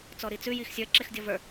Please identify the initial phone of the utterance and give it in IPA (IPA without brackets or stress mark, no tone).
t͡s